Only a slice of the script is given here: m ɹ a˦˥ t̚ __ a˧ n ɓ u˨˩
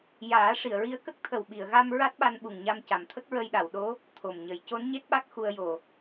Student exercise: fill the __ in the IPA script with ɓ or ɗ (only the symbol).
ɓ